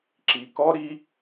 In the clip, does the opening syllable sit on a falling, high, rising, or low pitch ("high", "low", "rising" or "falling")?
low